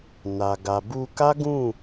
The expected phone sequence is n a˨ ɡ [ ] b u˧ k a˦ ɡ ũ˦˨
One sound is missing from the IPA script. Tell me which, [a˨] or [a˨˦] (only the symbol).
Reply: a˨